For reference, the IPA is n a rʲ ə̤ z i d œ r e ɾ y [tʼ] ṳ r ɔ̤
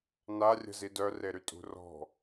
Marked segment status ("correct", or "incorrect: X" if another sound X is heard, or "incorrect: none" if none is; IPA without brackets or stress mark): correct